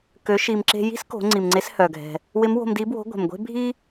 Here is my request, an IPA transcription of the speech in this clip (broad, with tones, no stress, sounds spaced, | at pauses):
k ø˩˧ ʃ i˩ m ǁ e̤˧ j i̤˥ s k o̤˩˧ ŋ͡ǀ i˩ m ŋ͡ǀ e˧˥ s h œ˩ ɡʱ ɛ̤˩ | w ɪ˧˥ m w o̤˧ m d i˧˥ b w o̤˧˥ ɡʷ ɛ̤˩ m ɡʷ e̤˥ bʱ i˥